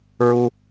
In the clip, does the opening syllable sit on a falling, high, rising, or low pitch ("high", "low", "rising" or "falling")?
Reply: high